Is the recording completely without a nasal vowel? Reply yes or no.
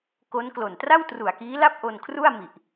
yes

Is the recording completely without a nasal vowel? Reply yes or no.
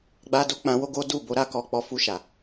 no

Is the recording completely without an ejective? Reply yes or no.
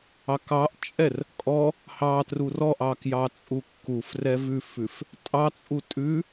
no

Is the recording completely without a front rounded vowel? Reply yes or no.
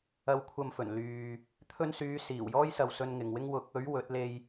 no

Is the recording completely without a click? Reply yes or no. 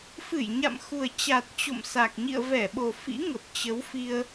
yes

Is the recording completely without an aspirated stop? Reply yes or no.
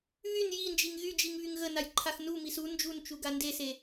no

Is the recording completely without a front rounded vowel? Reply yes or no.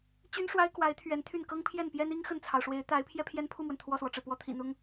no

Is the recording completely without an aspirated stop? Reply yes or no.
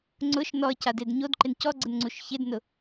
yes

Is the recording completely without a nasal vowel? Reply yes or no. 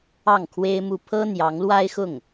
yes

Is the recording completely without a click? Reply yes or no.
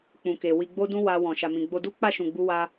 yes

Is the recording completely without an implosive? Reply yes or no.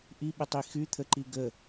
no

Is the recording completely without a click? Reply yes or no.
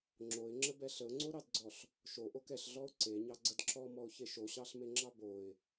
no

